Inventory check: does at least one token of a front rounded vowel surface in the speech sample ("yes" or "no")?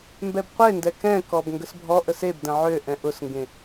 yes